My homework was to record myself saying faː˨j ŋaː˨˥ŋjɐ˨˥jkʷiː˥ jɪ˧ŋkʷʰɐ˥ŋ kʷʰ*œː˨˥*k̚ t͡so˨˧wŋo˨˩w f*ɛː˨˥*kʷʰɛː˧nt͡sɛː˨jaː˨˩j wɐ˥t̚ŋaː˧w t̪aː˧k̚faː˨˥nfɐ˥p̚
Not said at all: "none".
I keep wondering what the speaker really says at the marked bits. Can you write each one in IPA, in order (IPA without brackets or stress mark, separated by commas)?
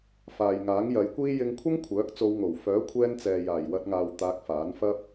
œː˨˥, œː˨˥